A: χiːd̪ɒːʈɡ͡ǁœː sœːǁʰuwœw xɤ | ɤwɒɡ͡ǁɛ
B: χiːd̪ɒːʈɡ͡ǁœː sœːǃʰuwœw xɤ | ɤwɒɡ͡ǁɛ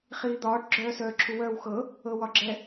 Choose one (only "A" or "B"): A